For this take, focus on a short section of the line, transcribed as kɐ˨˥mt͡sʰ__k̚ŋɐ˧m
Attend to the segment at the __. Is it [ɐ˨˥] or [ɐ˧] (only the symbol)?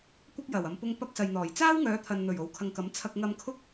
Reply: ɐ˧